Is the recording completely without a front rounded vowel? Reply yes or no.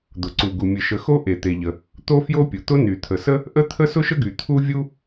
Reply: no